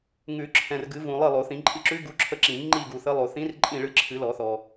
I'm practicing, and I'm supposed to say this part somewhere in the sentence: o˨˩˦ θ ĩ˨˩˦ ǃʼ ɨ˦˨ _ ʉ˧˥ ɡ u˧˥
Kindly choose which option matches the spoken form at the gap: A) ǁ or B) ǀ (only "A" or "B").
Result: A